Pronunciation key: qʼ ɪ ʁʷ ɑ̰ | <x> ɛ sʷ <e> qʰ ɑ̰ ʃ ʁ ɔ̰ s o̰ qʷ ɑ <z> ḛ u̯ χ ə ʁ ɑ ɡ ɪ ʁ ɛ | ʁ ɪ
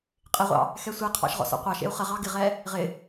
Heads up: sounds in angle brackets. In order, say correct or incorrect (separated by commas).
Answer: correct, correct, incorrect